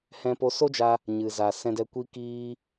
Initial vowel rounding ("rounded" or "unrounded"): unrounded